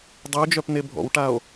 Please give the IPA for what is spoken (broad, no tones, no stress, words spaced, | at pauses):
dˤuo̯d͡ʒœpne bʱɔ̰wʈao̯